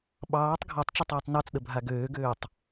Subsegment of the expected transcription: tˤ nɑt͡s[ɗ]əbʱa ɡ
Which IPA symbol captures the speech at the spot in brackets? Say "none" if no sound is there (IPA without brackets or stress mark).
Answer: ɗ